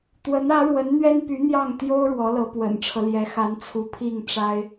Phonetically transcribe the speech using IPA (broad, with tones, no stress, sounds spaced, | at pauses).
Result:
t̪ w ə˧˥ n ä˧˥ ɻ w ə˧˥ n n̪ ɥ ɛ˥ n p y˧˥ n̪ j ɑ˥˩ ŋ t̪ j o˥ ʊ̯ ɻ w ɔ˧˥ l ɤ˧˥ p w ə̰˨˩ n ʈ͡ʂʰ ɤ˦ l j ɛ˧˥ x a˧˥ n t͡sʰ u˧˥ pʰ i˥˩ ŋ ʈ͡ʂ a˥ ɪ̯